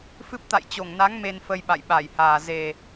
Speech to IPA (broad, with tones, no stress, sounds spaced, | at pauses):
f ɨ˦˥ p̚ t̪ a̰˧˨ j t͡ɕ o˧˩ ŋ n a˨˦ ŋ m e˧ n f ə˧ j ɓ a̰˧˨ j ɓ a˧˩ j h aː˨˩ z e˨˩